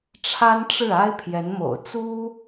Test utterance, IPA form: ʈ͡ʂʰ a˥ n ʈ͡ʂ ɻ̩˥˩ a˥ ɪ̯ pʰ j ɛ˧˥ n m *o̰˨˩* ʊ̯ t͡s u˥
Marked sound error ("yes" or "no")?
no